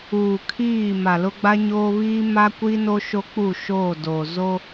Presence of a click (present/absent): absent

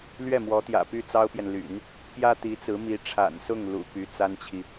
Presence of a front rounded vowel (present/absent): present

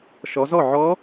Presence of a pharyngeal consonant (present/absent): present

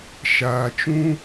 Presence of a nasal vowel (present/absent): present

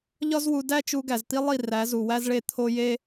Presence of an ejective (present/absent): absent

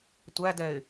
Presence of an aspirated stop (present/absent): absent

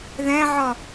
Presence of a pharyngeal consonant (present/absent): present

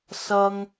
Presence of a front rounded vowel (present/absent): absent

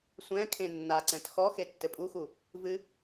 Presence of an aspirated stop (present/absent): present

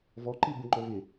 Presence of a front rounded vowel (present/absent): absent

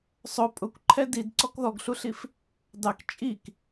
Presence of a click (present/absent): present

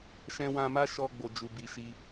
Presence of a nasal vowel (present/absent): present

